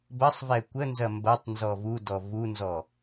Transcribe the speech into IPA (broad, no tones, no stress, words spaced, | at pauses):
bɐsˤvɛ kʷənzɐ mbɐtˤ nzɔvudɔ vunzɔ